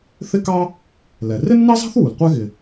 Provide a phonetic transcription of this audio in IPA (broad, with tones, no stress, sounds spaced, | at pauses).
θ ɪ˥ k ɑ˥ | l ɛ˩ r ɪ˥ nː ɑ˥ z ɑ̤˥ θ w u˩ l qʷ ɛ˥ ɣ ɪ˩